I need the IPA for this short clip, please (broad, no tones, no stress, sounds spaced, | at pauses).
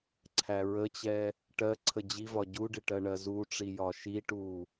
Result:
ǀʰ æ ɹ ə t͡ɕ ɛ | ʈ ɜ ǀʰ ə d͡ʑ i v ɒ ɟ u ɖ ɪ ʈ ɜ ɳ ɜ z u ʈ͡ʂ i j ɒ ʃ i ʈ u